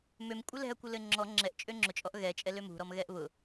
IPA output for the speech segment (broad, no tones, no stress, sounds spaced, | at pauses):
m ø m kʷʼ ɘ l ɛ̤ ɐ̯ kʷ ɘ l ɘ ŋ͡ǁ ɔ ŋ͡ǁ ɛ ʔ t͡ʃʼ ø ŋ͡ǁ ʊ t͡ʃʼ ɔ ʔ ɣ ɛ t͡ʃʼ ɛ l ø m ṳ ɾ ɔ m ɣ ɛ ʔ β ʊ